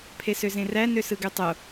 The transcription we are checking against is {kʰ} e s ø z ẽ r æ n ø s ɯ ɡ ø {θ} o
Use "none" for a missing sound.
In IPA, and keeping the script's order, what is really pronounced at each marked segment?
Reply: pʰ, tˤ

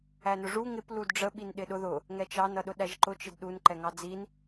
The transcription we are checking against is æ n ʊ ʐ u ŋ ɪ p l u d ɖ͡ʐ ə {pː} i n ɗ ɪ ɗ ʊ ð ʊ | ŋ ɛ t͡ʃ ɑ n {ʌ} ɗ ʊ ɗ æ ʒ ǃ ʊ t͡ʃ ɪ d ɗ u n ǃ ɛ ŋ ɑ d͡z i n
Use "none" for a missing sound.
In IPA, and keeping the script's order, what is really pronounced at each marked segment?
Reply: ɓ, ʌ

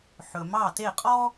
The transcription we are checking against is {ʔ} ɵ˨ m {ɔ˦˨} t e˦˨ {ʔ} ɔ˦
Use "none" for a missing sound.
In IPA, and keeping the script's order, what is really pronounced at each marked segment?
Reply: ħ, ɑ˦˨, qʼ

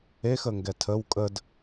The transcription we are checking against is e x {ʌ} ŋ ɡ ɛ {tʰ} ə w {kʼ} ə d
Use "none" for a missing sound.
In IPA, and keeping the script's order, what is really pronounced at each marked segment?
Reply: ə, tʰ, kʼ

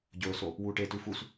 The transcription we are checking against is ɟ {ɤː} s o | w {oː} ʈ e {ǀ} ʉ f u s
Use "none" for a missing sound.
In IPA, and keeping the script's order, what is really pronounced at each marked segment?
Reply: ɵː, uː, t

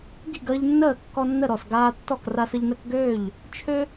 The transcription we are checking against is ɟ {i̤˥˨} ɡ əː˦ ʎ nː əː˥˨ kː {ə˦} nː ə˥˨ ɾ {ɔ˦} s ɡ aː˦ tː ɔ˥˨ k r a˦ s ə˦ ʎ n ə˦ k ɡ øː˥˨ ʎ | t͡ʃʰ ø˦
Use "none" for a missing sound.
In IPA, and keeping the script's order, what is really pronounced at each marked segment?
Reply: i̤˥˨, ɔ˦, ɔ˥˨

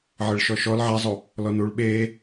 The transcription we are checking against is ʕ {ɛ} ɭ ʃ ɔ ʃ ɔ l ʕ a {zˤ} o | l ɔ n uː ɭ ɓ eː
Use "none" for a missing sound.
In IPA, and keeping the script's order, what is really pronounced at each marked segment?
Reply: ɘ, zˤ

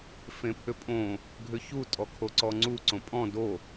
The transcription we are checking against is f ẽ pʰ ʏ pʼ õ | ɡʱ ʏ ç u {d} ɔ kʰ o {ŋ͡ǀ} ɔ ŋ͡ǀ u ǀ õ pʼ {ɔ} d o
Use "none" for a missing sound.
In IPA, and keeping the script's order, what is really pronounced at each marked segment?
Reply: tʼ, ǀ, ɔ̃

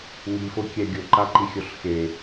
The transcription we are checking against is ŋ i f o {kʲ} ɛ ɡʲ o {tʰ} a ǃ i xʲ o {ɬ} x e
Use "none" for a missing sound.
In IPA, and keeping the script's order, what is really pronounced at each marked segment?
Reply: kʲ, ǃ, ɬ

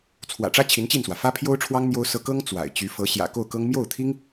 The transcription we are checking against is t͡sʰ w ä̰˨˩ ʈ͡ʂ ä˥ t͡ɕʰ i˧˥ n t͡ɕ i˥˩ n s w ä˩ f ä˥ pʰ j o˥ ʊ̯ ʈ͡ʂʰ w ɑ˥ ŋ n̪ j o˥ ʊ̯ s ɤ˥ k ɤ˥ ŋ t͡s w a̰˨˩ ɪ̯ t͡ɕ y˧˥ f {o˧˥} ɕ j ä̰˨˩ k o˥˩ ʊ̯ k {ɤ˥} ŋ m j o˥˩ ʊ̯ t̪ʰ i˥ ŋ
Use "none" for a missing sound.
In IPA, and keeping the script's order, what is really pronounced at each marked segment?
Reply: ɤ˧˥, ɤ˥

